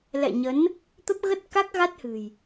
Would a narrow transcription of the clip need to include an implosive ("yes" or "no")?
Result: no